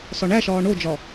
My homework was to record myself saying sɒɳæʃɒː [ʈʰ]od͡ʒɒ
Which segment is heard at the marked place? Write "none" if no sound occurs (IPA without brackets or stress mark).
ɳ